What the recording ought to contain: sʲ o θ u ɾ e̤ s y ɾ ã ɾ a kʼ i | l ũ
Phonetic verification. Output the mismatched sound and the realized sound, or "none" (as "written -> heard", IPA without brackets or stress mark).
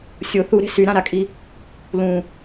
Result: none